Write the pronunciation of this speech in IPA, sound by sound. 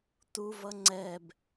tuvʌ ŋ͡ǀɛb

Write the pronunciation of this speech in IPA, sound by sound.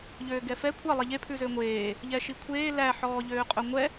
ʎøːɡɛfɛ kʷʰɑ lˠɛʎe pʰʉzøŋʷeː | ʎɛʃikʷʰeː læ ħɔːʎøːqʼɵŋʷɛ

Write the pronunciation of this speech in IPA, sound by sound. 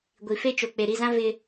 ɡʷi˨fe˦t͡ʃo˨ k͡pe˨ɾi˦˨zã˦ vɪ˦

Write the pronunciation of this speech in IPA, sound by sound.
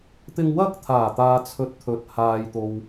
t̪ɪ˧ŋ wɐ˥k̚t̪ʰaː˨˩t̪aː˨t͡sʰɵ˨t̚ t̪ʰɵ˨t̚haː˨jt̪o˨w

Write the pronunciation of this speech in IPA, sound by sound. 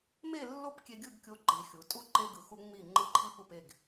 me˥˨lːo˥˨p kʲe˧ɡʲɯ˥˨ɡ kʲo˧ǃi˩˧ xʲu˩˧tʼu˥˨ ǃe˧ɡɯ˩˧xu˧ ŋ͡mi˥˨ ŋ͡ǃɯ˧ǃʰi˧ pu˥˨pe˥˨ɡ

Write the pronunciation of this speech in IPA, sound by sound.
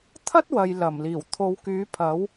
t̪ʰɐ˥t̚wɐ˨j lɐ˨˩mliː˨˩w t̪ʰo˨˧wkyː˨˥pʰɐ˨˥w

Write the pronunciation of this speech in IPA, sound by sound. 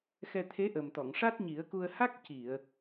xɛ˧t̪ʰe˧˥ʔə˨˩m t̪ɔ˨˩˨ŋʂa˦˥t̚ ɲi˨˩˦ə̯ku˧ə̯ ha˦˥k̚ ci˨˩˨ə̯

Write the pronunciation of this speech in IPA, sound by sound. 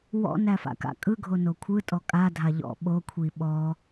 wɔ̰næfa̰ ka̰kʼɯɡʱo nokʷʰɯ tʼɔkʼadʱa ʎɔ̰ ɓokʷʰi ɓɔ

